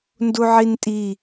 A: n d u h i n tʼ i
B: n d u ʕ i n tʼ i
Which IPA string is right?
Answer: B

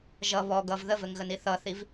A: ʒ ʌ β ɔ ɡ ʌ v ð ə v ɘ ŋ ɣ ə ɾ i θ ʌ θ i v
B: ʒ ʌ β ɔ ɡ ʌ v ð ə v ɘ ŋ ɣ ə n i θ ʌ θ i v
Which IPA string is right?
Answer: B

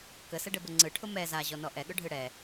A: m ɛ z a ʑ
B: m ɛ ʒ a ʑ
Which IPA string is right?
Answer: A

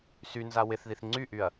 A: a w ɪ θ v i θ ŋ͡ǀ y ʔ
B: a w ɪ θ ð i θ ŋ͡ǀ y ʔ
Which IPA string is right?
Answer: B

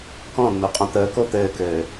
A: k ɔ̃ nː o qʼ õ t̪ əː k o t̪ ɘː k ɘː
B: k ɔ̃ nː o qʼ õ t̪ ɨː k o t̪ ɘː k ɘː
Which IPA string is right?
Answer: A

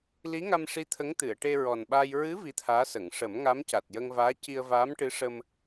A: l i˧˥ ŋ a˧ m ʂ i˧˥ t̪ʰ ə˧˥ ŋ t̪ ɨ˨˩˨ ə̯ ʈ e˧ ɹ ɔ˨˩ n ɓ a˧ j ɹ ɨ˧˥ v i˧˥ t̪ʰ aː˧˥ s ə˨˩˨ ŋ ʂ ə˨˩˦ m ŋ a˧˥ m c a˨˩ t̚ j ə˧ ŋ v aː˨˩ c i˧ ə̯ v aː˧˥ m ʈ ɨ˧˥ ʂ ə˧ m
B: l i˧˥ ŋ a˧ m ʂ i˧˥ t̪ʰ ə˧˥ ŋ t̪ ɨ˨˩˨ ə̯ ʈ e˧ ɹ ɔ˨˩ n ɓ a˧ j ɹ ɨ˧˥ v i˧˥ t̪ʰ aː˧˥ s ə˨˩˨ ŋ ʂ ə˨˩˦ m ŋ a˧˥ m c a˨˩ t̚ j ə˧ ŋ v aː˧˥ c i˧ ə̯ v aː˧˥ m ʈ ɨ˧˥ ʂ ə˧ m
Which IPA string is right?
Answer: B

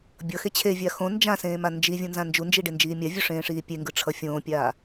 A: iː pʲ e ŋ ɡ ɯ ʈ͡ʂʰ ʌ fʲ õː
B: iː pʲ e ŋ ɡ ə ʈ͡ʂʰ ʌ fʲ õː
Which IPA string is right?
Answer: A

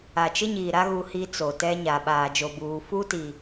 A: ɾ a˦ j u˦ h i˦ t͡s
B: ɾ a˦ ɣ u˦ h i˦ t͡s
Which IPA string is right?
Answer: B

